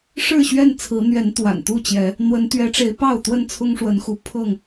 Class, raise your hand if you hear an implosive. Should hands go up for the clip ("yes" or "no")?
no